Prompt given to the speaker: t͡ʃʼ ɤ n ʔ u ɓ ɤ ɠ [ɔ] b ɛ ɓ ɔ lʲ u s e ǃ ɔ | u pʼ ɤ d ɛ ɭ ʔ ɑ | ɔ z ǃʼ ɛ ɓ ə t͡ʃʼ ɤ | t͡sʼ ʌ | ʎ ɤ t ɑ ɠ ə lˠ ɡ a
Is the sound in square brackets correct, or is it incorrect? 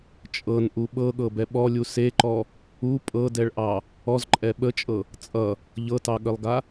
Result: incorrect